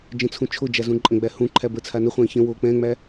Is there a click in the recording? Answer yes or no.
yes